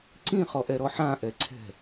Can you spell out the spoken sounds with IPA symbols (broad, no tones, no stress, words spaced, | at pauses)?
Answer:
ǀĩχɔʔɛɾɔ ħãʔɛǀʰɛ̤